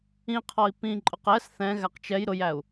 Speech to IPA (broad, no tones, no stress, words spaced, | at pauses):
ĩqʰɔi̯ pĩǃʼʊq ɛs θɛ̃ɣæq t͡ʃɛj ɾʊjæu̯